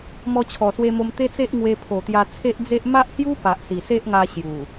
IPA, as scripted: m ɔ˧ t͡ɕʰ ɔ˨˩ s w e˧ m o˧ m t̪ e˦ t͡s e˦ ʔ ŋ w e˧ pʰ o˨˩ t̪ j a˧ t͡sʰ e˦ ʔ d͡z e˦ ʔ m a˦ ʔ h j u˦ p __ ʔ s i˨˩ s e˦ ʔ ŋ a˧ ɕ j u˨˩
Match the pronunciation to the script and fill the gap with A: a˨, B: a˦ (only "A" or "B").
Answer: A